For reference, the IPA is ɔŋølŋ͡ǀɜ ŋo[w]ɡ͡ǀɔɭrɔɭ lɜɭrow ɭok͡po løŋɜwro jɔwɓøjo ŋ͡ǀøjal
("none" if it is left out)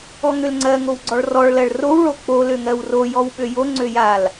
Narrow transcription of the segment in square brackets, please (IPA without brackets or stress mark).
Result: w